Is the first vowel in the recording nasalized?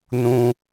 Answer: yes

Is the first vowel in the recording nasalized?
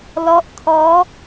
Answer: no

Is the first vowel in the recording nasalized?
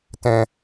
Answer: yes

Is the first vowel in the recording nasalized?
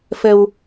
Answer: no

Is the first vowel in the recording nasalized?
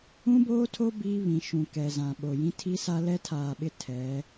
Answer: yes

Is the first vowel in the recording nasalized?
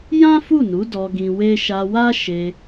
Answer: yes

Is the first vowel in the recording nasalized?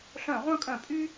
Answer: yes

